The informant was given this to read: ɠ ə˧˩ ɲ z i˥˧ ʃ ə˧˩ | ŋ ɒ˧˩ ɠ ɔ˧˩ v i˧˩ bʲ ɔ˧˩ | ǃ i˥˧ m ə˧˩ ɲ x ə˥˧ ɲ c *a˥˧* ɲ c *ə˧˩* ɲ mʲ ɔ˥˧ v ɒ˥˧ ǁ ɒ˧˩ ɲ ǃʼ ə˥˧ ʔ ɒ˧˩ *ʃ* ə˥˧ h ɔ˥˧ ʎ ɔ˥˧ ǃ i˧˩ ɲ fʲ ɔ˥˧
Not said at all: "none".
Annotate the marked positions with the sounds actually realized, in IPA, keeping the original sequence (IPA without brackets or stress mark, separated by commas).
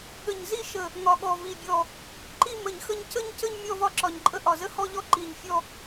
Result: ə˥˧, ə˥˧, z